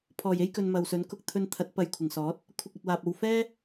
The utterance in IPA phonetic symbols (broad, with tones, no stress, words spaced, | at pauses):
pʰɔː˨˩je˥j kɵ˧nmɐ˨wsɵ˨˥n kʊ˧k̚t̪ʰɵ˧nt̪ʰɐ˨˥t̚ pɐ˧jkʷʰɪ˨˩ŋsɔː˨˥t̚ | kʷʰɪ˧k̚ɵ˨t̚waː˨p̚ o˧w fɛː˥